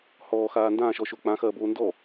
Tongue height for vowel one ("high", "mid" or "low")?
mid